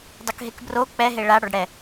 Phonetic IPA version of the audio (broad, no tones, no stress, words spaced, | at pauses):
dˤokɦekbro k͡pɛ ɦeɭa ɽɔɖɽɛ